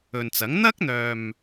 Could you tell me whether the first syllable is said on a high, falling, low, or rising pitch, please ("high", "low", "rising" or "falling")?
low